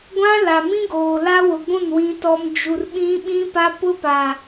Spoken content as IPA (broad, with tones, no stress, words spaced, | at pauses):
ɡʷã˦la˨mĩ˦ ɡoː˨la˦wʊ˨ɡʷũ˦˨n wĩ˦tɔ˦m d͡ʒu˨r ɓĩ˦ɓĩ˦pa˦ pʊ˦pa˨